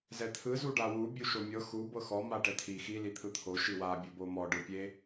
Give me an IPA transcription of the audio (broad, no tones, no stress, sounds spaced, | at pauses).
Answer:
z ɛ t̪ʰ ɯ z u ɖ a w u bʲ u ʃ o mʲ ɤ x u b ɤ x ɔ m a ʈ ɛ t̪ʰ i x i l i t̪ʰ ɯ t̪ʰ o ʃ i w a bʲ o b o m ɔ ɖ ɯ pʲ e